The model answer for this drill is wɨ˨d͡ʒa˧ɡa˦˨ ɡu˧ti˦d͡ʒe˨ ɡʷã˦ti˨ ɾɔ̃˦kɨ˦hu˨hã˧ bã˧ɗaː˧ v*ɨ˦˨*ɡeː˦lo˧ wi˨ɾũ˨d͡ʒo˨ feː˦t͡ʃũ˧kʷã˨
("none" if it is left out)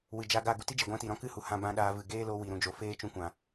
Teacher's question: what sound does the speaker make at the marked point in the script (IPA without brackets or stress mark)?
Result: ɨ˨